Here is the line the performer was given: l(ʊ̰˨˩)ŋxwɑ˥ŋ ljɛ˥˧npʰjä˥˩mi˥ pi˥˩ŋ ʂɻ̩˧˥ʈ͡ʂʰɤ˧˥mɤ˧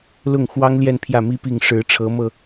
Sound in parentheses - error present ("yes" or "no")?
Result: yes